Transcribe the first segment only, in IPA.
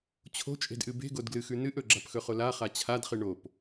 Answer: t͡ɕʰ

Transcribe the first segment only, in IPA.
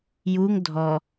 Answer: j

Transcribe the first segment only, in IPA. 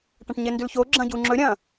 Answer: ʈ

